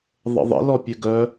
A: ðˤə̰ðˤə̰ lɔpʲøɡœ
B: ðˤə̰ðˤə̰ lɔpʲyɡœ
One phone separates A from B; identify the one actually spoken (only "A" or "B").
A